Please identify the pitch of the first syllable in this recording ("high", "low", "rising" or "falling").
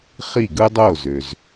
falling